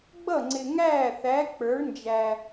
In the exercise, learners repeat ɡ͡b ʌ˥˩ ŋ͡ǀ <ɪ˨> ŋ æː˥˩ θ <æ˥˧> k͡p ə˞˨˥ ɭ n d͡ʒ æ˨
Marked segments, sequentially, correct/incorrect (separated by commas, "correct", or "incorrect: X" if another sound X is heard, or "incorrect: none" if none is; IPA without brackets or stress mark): correct, incorrect: æ˨˥